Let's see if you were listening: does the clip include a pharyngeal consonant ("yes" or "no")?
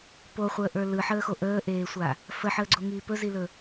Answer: yes